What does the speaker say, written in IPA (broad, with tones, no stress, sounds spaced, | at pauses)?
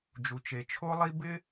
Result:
d͡ʒ u˨ t͡ʃ e˨ t͡ʃʰ o˦ lˠ i˦ b ɪ˦